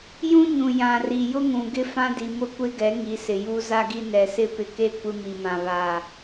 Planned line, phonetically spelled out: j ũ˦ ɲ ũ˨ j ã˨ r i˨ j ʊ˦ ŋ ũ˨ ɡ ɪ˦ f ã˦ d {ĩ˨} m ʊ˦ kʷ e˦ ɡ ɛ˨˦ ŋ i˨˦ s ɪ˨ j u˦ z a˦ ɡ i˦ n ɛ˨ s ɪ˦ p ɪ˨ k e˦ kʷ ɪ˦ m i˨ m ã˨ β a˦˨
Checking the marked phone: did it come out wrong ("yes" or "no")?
yes